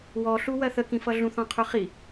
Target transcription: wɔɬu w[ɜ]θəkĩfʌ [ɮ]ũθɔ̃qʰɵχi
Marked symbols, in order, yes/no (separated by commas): yes, yes